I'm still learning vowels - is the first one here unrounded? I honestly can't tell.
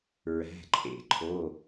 yes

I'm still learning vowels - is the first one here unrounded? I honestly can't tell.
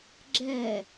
yes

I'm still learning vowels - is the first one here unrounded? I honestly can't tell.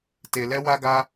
yes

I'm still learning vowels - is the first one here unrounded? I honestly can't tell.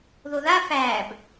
no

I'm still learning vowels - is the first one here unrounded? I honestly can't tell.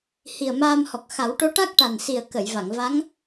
yes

